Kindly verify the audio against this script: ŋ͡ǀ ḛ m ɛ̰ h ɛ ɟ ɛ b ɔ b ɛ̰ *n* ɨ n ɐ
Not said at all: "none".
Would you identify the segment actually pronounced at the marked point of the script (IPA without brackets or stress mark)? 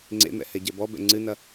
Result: ŋ͡ǀ